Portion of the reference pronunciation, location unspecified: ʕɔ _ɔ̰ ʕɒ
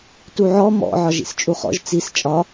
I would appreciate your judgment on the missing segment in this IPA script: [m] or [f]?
m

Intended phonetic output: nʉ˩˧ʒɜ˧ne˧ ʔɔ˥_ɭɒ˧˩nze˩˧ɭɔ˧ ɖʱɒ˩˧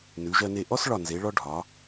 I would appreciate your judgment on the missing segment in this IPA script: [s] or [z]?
s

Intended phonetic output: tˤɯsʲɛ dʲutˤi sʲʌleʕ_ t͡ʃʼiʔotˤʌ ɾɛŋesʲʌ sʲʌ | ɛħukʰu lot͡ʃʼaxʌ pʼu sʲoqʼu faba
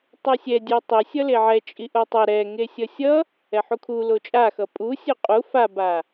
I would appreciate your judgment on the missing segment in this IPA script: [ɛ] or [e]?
ɛ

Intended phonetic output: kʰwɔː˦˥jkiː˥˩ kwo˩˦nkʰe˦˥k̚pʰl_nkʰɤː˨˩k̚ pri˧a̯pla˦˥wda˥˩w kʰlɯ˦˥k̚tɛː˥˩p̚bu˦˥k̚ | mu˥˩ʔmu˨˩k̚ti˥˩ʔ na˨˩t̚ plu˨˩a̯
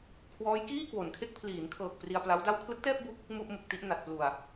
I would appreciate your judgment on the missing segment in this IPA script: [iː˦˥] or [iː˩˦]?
iː˩˦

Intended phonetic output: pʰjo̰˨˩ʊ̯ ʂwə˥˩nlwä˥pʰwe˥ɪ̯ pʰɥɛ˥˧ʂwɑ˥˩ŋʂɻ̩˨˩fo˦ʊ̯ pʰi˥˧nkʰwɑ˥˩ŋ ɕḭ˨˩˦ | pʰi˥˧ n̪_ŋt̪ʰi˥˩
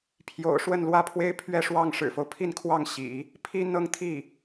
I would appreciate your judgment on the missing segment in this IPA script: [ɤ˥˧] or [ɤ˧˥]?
ɤ˥˧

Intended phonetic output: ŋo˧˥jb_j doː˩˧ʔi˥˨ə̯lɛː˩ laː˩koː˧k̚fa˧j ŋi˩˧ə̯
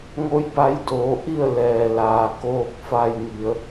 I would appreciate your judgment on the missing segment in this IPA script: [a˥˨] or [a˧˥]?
a˧˥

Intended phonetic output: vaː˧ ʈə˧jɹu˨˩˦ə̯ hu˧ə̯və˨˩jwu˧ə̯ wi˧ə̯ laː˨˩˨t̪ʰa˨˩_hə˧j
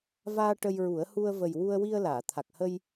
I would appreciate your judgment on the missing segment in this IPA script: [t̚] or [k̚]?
k̚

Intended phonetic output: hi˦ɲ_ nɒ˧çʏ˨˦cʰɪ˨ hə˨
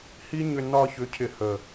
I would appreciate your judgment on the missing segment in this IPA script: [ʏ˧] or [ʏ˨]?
ʏ˧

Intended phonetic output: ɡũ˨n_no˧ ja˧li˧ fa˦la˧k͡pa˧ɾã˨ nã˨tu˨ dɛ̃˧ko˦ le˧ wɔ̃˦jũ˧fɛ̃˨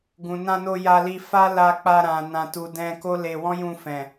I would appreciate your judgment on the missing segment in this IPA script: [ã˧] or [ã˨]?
ã˧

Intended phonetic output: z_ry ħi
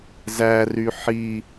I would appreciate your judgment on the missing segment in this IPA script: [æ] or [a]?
æ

